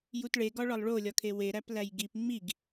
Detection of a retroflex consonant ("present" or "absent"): present